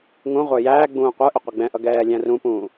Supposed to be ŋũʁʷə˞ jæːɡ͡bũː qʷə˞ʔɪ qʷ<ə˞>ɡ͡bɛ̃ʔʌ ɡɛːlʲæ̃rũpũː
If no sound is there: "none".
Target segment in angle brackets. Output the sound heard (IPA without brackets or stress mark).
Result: ʌ